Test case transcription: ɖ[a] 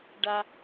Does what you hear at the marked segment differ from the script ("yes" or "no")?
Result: no